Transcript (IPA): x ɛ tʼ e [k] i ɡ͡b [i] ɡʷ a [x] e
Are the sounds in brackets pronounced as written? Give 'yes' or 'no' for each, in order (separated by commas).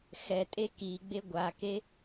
yes, no, no